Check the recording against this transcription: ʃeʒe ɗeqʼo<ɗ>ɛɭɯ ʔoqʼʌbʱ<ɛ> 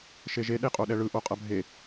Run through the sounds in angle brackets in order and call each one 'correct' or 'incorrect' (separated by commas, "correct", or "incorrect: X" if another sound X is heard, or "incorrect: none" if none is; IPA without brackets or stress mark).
correct, incorrect: e